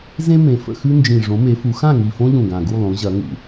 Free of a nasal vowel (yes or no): no